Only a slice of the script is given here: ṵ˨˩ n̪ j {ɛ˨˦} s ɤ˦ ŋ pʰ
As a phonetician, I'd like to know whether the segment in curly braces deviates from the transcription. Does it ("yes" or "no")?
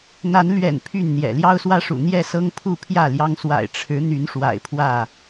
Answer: yes